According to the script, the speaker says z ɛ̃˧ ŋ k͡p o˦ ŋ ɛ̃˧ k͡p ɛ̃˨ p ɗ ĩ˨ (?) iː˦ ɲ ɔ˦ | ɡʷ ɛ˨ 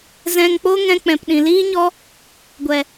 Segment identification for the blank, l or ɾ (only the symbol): l